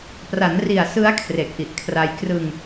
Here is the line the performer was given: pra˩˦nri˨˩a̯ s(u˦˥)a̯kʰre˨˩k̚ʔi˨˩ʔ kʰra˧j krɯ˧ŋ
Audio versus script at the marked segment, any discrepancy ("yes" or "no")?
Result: yes